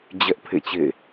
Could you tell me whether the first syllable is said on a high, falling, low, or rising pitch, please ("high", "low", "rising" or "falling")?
high